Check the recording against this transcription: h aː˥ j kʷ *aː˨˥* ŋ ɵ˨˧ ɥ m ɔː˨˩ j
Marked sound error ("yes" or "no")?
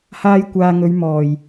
yes